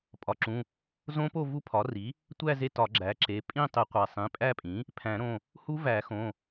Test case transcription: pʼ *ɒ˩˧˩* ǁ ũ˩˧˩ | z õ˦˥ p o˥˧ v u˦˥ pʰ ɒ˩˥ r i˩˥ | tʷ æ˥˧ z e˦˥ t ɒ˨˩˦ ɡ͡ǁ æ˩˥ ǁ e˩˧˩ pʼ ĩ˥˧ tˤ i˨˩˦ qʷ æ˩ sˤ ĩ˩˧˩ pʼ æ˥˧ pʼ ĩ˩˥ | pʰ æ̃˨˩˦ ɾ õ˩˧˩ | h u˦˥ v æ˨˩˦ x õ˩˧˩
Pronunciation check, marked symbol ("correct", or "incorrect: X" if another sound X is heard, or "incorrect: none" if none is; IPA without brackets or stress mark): incorrect: ɒ˩